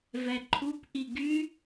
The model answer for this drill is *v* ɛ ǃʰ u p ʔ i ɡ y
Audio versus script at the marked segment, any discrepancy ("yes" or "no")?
no